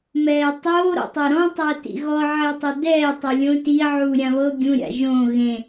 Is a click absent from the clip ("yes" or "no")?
yes